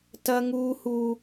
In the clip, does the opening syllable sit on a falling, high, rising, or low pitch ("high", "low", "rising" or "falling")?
high